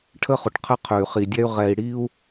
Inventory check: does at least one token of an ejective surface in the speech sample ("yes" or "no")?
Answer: no